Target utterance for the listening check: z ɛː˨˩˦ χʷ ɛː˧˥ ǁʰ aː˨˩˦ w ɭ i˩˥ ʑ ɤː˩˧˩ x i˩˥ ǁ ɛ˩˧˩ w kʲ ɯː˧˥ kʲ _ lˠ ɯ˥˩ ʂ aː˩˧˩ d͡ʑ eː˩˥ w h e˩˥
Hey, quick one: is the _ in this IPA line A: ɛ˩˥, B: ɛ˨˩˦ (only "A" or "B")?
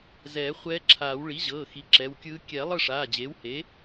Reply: B